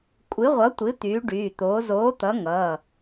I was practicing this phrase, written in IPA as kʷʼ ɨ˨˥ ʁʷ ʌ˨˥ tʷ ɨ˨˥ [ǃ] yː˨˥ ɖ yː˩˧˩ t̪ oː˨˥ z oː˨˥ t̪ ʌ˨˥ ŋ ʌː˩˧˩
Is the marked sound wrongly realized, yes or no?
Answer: yes